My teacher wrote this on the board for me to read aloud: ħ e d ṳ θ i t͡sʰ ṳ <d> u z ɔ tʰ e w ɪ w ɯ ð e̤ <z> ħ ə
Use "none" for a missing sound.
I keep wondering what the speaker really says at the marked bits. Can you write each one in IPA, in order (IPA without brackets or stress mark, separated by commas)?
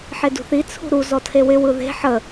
ɾ, none